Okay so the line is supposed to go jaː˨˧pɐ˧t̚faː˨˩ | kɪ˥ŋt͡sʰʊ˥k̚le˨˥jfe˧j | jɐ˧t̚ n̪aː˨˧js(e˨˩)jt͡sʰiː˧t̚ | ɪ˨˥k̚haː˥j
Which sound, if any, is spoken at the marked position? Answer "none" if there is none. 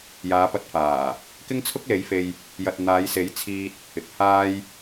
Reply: e˨˥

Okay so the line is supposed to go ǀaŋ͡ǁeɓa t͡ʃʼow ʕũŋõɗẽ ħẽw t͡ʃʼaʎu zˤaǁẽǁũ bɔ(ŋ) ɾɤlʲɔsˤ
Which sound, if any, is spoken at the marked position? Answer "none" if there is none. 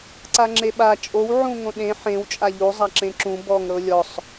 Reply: ŋ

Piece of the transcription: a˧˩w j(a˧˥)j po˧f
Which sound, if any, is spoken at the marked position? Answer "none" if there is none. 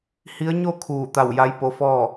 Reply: a˧˥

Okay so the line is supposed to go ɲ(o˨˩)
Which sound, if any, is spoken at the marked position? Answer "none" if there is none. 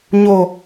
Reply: o˨˩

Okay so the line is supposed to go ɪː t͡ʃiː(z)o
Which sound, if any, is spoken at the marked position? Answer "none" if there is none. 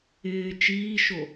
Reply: ʃ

